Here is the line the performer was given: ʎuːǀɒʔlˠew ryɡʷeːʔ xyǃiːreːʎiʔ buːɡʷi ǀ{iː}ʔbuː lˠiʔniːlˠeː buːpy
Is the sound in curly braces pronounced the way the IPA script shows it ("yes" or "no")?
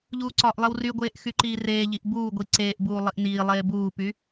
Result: no